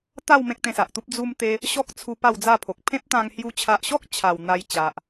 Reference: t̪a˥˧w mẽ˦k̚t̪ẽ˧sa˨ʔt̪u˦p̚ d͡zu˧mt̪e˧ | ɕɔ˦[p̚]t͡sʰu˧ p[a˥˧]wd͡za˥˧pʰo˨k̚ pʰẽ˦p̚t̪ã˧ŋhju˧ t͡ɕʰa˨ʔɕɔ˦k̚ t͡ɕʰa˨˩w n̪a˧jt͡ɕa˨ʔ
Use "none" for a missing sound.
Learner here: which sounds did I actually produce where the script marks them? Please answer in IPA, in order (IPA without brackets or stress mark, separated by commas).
k̚, a˥˧